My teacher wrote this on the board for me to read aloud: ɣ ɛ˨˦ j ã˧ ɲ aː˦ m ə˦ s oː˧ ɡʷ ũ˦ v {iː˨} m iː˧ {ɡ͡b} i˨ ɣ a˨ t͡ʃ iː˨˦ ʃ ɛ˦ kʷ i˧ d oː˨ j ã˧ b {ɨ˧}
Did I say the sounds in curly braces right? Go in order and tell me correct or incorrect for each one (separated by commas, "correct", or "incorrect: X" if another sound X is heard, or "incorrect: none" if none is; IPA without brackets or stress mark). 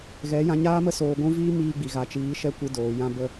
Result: incorrect: iː˦, correct, incorrect: ə˧